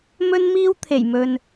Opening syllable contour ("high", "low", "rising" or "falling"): high